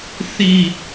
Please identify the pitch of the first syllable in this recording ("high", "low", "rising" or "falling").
falling